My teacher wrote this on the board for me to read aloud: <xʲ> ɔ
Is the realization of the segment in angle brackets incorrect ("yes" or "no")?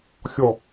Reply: no